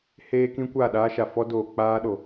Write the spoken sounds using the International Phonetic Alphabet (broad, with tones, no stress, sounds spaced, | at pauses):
h eː˦ k ĩ˦ kʷ a˦˨ ɗ aː˦ ʃ a˨ f ɔ˦ d oː˨ k͡p aː˦ ɗ o˨